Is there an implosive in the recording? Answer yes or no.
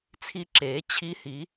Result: no